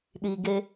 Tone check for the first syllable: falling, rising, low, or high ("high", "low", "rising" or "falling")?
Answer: high